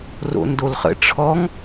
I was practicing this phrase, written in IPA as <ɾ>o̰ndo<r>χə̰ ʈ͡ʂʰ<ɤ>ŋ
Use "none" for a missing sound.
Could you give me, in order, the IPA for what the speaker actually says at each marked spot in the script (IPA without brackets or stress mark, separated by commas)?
r, l, ɔ